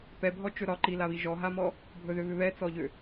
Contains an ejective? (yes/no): no